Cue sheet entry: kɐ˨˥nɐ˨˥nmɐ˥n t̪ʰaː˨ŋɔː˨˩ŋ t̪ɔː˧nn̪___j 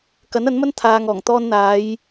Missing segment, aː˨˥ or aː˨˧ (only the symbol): aː˨˧